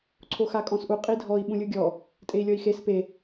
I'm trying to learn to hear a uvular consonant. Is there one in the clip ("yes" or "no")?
yes